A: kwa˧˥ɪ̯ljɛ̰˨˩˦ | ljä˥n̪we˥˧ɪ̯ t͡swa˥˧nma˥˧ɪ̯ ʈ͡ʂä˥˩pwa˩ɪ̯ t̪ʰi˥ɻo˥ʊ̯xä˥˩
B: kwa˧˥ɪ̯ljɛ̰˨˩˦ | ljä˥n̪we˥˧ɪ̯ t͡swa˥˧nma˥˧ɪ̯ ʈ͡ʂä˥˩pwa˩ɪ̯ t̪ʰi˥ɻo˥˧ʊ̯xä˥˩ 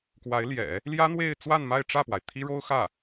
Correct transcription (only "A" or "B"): A